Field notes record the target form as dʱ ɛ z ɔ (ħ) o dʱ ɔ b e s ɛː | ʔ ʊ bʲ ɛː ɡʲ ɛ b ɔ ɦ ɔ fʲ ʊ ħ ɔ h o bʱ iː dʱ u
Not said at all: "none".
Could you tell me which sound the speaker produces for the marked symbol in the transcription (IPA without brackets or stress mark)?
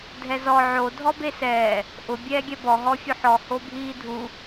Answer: ʕ